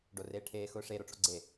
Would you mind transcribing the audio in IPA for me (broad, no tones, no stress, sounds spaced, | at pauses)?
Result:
ɖ o r eː ʈʰ eː x ʊː ʂ e ɾ o ʈ͡ʂ o̰ ɡ͡ǀ e